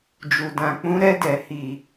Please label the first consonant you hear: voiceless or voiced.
voiced